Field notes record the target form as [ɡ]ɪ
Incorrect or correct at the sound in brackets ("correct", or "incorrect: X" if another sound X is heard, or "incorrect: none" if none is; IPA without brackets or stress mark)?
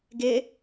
correct